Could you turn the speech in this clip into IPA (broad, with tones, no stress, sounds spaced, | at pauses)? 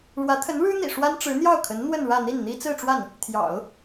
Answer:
ɻ w ä˧˥ t̪ʰ ə˧˥ n ɻ ɻ̩˥ n̪ ḭ˨˩ ʂ w a˥ n ʈ͡ʂ ɻ̩˧˥ n̪ j ɑ˥˩ ʊ̯ kʰ ə˧˥ n n̪ w ə˥˧ n ɻ ä˥˧ n̪ i˥˩ n n̪ i˥ t͡s ɹ̩˥˧ ʈ͡ʂ w a˥˩ n | t̪ʰ j ɑ̰˨˩˦ ʊ̯